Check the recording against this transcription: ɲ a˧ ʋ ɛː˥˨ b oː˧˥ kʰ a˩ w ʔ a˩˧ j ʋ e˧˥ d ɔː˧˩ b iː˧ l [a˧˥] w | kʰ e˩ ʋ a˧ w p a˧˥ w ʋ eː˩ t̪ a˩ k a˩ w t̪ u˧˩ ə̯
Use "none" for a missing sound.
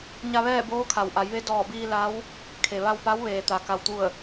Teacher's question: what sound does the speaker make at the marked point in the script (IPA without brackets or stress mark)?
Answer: a˧˥